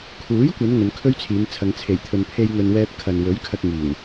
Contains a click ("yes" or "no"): no